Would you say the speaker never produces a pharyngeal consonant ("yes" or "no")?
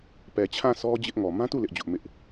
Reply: yes